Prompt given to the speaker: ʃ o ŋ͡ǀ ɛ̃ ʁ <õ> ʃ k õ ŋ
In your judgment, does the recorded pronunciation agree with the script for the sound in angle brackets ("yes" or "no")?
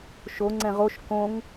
no